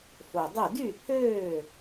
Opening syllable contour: low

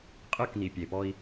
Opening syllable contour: falling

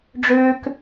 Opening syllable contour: high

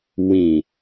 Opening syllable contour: low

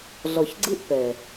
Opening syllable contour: low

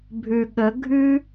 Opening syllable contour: low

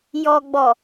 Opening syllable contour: low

